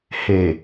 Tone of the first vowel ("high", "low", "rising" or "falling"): low